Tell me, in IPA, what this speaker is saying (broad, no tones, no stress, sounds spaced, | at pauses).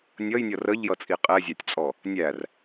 nʲ ʌ j nʲ ʌ r ə ʎ j ʌ t͡sʼ i qʼ ɛ zʲ ɑ tʲ t͡sʼ ɔ | nʲ æ r